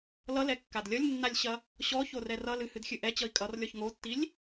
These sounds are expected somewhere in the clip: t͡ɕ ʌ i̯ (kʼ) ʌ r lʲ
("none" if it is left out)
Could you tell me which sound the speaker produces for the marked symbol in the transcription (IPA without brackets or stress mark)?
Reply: kʼ